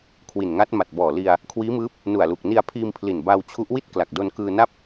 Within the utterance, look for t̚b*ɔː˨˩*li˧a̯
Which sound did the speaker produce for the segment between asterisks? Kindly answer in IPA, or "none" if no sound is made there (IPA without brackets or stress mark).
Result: ɔː˨˩